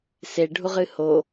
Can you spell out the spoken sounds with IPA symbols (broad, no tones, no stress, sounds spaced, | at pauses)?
s e ɖʱ u ʁ ɨ h o